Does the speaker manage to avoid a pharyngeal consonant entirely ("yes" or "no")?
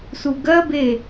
yes